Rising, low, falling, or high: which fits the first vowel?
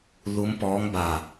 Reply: rising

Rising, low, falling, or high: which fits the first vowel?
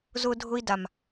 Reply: high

